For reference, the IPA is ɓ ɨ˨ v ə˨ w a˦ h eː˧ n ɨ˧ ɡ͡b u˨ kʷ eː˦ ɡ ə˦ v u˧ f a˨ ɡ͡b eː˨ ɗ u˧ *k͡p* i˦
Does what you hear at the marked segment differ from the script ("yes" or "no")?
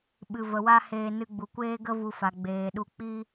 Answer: no